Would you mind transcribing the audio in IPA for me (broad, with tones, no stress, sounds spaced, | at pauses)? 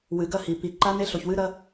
w ɨ˨˩˦ ɡ ɐ˧˥˧ h i˨˩˦ p i˨˩˦ ǃ a˦˥ n e˦˥ ɬ o˨ ç w ɨ˦˥ ɾ ɐ˦˥